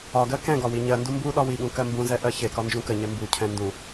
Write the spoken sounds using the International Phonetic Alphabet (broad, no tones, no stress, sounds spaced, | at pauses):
ɒ ɡ ɜ k ɛ̃ ɡ ɒ w i ɲ ɜ n d u m b u ɗ ɒ w i ɠ ũ k ɜ m b ũ z ɛ ʔ ɜ ç e k ɒ n d͡ʒ ũ k ə ɲ ɛ m b u cʰ ɛ̃ n d ũ